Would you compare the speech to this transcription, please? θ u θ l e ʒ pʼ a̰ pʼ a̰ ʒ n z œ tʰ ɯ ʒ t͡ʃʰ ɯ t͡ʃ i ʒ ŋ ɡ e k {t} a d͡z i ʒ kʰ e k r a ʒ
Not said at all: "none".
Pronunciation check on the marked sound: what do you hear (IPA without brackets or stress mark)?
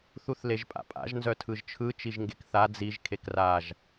θ